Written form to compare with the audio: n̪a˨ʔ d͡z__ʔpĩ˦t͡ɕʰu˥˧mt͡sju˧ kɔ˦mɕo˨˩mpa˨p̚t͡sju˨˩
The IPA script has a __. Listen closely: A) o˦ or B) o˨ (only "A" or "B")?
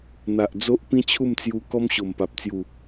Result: A